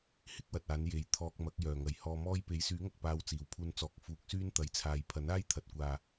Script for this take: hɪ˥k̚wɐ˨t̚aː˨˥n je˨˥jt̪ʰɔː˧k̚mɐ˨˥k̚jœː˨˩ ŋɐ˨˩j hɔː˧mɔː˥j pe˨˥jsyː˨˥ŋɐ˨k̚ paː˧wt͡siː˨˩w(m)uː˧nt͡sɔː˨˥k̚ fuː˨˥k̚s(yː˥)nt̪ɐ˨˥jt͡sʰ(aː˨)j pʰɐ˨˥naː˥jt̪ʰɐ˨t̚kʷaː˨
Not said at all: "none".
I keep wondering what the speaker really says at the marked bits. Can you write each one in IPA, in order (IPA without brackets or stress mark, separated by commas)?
pʰ, yː˥, aː˨